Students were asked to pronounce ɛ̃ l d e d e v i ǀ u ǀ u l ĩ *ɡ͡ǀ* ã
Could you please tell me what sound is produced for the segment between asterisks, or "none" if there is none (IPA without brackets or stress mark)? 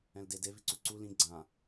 ɡ͡ǀ